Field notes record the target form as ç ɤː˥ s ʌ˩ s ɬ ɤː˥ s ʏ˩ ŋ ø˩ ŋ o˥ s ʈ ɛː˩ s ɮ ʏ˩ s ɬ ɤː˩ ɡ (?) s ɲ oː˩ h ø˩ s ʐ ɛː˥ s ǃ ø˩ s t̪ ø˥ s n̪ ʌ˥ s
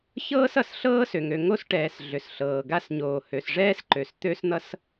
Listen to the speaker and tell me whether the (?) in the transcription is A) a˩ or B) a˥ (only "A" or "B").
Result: B